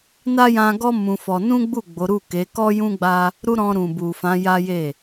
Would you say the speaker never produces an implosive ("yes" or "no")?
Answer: yes